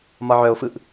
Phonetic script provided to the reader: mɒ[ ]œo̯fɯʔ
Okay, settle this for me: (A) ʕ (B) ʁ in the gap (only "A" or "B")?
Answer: A